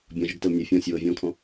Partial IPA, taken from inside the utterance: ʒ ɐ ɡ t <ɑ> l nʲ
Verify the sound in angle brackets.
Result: incorrect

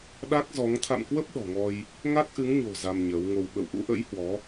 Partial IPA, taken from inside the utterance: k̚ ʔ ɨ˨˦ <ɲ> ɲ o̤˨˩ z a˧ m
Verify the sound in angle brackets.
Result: incorrect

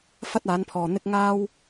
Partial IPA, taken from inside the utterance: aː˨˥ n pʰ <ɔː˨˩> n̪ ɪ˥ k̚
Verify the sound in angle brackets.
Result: incorrect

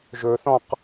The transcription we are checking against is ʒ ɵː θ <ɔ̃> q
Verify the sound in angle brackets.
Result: correct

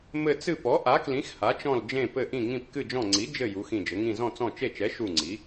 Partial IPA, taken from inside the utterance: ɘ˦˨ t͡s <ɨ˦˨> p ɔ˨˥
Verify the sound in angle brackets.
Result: correct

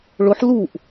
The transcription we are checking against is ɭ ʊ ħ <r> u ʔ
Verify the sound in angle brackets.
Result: incorrect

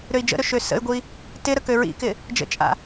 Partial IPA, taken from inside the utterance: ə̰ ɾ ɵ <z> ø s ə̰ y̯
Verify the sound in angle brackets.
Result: incorrect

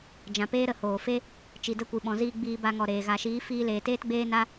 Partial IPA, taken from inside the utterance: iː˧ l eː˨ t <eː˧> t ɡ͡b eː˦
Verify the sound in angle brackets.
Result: incorrect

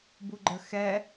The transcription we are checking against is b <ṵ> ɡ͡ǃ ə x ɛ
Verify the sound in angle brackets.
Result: incorrect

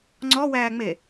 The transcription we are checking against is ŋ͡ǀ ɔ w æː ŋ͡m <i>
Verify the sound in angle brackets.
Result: incorrect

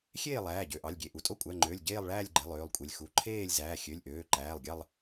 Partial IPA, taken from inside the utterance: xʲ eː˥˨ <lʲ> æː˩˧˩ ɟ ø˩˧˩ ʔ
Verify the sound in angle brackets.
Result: incorrect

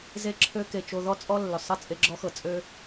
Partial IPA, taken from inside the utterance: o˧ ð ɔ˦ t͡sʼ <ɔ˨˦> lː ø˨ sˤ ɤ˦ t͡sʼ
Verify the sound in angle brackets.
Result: incorrect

